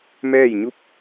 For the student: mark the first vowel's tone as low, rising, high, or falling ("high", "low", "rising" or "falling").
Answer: falling